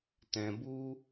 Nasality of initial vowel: nasal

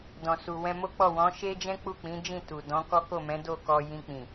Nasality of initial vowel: nasal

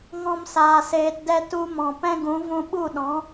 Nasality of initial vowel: nasal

